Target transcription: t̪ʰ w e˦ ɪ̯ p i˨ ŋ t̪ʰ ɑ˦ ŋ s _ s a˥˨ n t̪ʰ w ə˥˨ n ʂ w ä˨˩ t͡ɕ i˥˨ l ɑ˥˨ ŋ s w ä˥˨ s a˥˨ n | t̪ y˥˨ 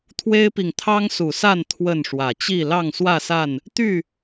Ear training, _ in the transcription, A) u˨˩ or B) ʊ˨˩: A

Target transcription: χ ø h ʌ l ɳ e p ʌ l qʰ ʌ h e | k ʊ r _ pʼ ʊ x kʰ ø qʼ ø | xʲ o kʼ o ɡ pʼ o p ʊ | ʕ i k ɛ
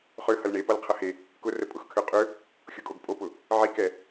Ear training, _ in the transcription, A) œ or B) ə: B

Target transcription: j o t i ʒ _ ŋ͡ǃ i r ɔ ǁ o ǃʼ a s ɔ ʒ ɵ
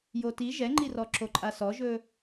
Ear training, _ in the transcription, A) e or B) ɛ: B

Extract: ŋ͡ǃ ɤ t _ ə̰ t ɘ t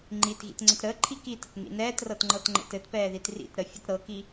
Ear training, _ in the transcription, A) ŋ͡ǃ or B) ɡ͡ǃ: A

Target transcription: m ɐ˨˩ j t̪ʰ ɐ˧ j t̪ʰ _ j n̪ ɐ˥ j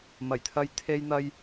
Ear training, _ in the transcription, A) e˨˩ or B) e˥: B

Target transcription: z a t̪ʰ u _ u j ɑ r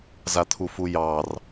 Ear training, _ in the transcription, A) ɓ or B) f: B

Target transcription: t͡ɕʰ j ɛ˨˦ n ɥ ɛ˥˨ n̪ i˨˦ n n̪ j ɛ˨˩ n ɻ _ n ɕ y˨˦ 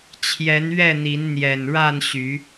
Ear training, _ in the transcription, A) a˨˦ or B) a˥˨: B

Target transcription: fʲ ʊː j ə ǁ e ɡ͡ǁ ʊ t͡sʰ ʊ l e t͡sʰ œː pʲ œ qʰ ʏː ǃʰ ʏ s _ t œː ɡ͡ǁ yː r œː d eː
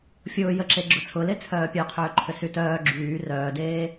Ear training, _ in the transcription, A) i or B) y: B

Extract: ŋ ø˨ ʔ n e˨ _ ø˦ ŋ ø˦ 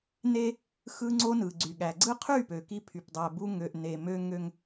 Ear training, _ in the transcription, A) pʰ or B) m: B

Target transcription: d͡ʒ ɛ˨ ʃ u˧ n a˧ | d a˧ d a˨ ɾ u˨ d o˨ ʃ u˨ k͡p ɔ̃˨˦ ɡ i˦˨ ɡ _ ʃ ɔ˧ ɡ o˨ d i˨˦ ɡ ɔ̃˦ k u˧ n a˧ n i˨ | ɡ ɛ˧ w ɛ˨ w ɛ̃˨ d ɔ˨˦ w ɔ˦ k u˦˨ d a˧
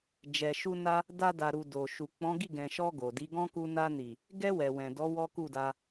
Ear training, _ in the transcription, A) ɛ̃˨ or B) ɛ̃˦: A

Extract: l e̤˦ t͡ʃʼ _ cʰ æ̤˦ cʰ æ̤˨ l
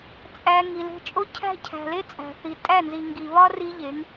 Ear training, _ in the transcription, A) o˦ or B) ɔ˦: A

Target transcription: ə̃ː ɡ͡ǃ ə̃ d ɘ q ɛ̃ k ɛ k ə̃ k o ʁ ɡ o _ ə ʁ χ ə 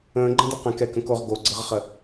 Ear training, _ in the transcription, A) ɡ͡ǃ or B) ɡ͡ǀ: B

